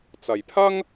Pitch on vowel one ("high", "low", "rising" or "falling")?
low